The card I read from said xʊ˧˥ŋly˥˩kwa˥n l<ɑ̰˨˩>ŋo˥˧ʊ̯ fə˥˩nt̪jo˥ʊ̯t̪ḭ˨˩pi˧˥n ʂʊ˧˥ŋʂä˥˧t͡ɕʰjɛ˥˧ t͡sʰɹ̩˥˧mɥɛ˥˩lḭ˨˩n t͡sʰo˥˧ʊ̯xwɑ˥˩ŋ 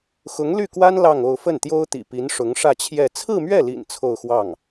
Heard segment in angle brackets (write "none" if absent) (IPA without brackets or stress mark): ɑ˥˧